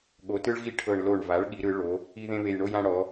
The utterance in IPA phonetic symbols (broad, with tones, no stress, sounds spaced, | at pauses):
ɠ o˩˧ t ɯ˧ ɭ ɣ i˧ ʈʰ ɤ˨˩ ɳ l o˨˩ ɳ v a˩˧ ɭ ɠ i˩˧ ɾ ɯ˩˧ ɭ o˩˧ | i˧ ð ẽ˧ β e˨˩ j ɳ o˧ j ã˧ ɽ ɔ˩˧